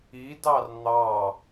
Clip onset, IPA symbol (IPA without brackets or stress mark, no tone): i